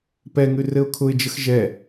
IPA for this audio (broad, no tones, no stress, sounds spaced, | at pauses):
p ɛ ŋ ʉ r ɘ ʊ̯ kʰ ʊ ɪ̯ d͡ʒ ə x ʒ ɛ